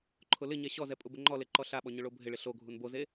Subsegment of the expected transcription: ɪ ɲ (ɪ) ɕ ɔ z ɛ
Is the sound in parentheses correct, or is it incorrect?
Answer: incorrect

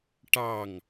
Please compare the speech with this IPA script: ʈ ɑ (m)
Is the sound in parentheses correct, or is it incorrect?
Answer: incorrect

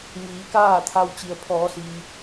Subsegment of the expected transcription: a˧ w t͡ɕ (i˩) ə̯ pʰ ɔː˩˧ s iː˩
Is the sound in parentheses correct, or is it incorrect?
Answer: correct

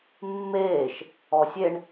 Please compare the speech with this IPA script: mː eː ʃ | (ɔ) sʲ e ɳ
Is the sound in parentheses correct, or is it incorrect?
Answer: correct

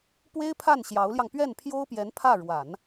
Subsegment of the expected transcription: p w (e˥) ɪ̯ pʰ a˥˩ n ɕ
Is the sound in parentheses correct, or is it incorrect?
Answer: correct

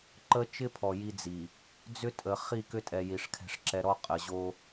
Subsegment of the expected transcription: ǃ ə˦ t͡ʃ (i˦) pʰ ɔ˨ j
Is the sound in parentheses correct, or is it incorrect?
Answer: incorrect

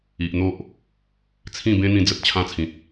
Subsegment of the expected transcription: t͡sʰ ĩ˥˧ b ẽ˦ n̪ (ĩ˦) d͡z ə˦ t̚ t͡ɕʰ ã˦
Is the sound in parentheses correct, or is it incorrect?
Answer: incorrect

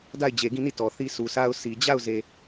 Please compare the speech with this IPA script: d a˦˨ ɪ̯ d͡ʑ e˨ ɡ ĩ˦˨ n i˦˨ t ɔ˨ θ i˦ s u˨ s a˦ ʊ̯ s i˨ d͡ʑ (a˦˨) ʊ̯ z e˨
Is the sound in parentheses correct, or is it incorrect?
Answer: correct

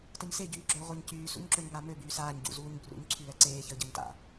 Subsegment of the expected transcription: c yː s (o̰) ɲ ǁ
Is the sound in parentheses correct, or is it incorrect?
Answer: incorrect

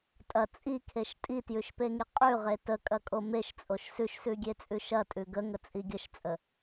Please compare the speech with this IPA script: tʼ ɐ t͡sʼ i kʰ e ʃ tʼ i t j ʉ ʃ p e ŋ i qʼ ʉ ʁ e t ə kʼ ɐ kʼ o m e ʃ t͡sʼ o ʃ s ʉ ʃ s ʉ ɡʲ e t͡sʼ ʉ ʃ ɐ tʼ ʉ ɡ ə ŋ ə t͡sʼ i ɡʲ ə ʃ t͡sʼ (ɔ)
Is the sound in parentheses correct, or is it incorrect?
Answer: incorrect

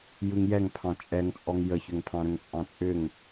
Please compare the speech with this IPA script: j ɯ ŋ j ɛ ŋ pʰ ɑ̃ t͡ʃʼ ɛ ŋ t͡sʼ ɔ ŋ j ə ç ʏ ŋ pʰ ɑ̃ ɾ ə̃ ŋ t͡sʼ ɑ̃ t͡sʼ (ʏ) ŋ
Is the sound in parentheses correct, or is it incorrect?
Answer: correct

